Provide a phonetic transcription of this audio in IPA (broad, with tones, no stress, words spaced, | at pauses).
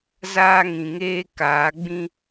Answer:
zaː˦ŋĩ˨ŋeː˦ kaː˨˦ɡ͡bĩ˦